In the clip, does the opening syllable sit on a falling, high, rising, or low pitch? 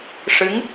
rising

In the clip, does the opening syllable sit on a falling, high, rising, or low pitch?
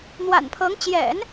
low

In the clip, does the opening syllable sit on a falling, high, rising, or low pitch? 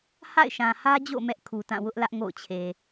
falling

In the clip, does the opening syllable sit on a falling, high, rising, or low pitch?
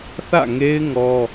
falling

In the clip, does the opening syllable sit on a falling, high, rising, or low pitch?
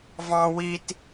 high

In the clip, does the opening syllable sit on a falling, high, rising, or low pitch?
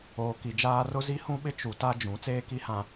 low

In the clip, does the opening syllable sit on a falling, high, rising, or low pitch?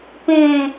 low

